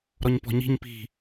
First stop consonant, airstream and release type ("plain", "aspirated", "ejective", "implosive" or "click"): plain